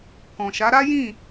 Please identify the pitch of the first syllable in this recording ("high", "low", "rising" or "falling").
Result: low